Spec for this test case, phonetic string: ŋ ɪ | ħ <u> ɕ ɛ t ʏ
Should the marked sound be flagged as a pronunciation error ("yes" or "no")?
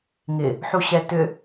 no